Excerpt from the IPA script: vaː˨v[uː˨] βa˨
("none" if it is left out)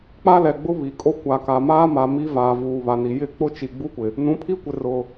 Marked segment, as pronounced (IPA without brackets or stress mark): uː˨